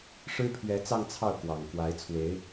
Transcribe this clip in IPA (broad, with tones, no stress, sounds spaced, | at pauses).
ʂ ɻ̩˥ pʰ ɥ ɛ˧˥ t͡s ɑ˥˧ ŋ t͡sʰ ɑ˥˩ ʊ̯ k w ɑ˨˩ ŋ k w a˧˥ ɪ̯ t͡sʰ w e˧˥ ɪ̯